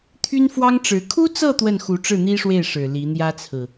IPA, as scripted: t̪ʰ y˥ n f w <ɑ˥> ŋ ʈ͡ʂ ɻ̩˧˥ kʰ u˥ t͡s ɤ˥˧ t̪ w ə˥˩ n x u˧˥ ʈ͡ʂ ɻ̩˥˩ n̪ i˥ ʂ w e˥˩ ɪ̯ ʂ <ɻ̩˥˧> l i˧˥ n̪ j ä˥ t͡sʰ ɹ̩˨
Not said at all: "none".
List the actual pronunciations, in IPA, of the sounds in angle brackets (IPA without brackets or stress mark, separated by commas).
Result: ɑ˥, ɻ̩˨˩